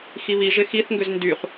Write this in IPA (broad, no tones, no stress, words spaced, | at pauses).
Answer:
xiβiʒɪ xiθŋɡʏz ndyχ